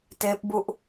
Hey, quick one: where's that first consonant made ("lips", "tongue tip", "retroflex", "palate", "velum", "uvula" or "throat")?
tongue tip